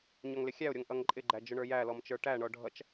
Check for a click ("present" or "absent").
present